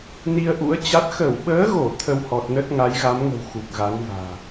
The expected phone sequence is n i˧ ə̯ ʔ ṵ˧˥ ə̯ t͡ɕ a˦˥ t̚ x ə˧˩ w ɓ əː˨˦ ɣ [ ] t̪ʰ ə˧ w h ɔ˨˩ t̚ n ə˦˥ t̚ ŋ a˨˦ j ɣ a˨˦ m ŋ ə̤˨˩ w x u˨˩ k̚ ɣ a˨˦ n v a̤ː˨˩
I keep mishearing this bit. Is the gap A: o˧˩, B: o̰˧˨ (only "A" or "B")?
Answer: A